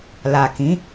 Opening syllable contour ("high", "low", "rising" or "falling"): low